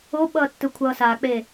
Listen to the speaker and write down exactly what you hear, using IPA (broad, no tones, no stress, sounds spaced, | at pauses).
o ɓ ʌː tː ɯ kʷʰ ʌː s a k͡p e